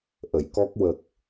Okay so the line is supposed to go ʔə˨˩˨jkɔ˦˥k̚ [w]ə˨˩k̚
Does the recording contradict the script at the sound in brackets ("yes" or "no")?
no